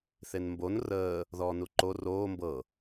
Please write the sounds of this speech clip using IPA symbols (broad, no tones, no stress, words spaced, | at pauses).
θenmbon rəː | ðɔːnuǃo roː mbɤ